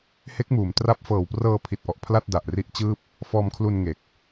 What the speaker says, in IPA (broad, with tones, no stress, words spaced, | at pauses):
he˦˥k̚muː˩˦mtra˦˥p̚ fɤː˨˩wprɤː˧pʰi˨˩t̚ʔɔ˨˩ʔ pʰla˥˩t̚da˨˩ʔri˦˥ʔt͡ɕɯː˥˩p̚ | fɔː˧mkʰlu˧nŋe˨˩k̚